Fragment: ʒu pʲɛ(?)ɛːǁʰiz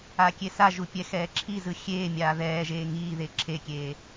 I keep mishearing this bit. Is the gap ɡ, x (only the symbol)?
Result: x